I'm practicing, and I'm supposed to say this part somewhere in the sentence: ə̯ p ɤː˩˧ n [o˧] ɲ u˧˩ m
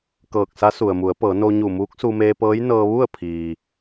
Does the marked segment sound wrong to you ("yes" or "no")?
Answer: no